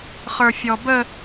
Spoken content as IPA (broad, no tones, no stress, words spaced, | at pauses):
χə˞fʲɔbə